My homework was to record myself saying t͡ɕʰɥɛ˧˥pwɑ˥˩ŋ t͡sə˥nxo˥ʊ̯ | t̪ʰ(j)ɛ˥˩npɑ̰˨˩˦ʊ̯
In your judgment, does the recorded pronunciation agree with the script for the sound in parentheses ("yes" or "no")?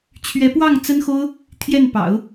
yes